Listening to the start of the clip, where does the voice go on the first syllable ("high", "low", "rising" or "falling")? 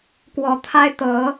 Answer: rising